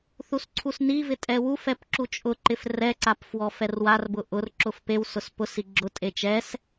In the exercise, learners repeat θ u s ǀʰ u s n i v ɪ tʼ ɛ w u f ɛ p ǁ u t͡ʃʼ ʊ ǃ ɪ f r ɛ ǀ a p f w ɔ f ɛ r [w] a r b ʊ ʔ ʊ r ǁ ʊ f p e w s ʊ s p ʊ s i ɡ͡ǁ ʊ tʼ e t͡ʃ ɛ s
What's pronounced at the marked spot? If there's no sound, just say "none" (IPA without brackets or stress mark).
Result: w